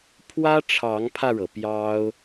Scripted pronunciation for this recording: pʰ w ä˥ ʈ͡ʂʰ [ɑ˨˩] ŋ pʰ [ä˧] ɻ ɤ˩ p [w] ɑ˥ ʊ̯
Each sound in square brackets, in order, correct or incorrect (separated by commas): incorrect, correct, incorrect